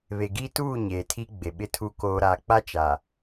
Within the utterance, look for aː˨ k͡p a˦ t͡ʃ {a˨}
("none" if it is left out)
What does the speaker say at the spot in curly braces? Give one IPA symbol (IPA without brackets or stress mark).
a˨